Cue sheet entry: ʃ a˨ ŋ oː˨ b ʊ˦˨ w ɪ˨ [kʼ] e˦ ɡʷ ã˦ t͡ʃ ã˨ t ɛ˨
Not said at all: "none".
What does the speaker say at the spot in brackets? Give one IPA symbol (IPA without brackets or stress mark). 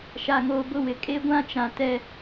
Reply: kʼ